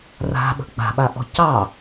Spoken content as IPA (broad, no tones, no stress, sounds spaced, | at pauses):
r a̤ ɓ ə̤ ɡ͡b a̤ ɓ a ʔ ɔ̤ c ɑ